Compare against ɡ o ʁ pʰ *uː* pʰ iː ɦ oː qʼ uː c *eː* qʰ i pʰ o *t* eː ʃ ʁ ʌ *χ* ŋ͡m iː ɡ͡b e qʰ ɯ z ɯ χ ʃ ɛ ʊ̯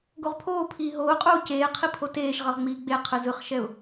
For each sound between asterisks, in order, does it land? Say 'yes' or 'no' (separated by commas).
no, yes, yes, no